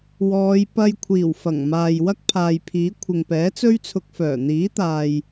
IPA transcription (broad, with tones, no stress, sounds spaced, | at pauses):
w ɔː˨˧ j p ɐ˧ j kʷʰ iː˨˩ w f ɐ˨˩ ŋ m aː˨ j w ɐ˥ k̚ pʰ aː˨ j pʰ iː˨˥ kʷʰ ɪ˨ ŋ p ɛː˨˥ t͡s ɵ˥ ɥ t͡sʰ ʊ˧ k̚ f œː˨˩ n̪ iː˨˥ t̪ aː˨ j